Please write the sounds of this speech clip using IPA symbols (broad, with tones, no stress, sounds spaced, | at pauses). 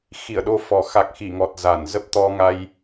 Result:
x i˧˩ ə̯ ɗ o˧ f ɔ˨˩ x a˨˩ k̚ x i˧˩ ŋ ɔ˨˩ t̚ z a˧˩ n z ə˦˥ p̚ t̪ ɔ˧ ŋ a˧ j